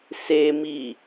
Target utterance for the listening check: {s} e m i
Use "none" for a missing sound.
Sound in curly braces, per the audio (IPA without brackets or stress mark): s